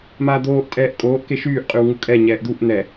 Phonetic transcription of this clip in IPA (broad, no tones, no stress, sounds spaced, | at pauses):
m aː d̪ oː ʔ tʼ ɛː ʔ kʼ oː ʔ k e ʃ yː ʔ qʼ y w ŋ u kʼ ɛ ɲ ɛː ʔ d̪ u ʔ n̪ ɛ